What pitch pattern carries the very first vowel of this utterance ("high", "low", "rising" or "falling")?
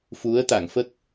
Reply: rising